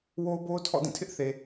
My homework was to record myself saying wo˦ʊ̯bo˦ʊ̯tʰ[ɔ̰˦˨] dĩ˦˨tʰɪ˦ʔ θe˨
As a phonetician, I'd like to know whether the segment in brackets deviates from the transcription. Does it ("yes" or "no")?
no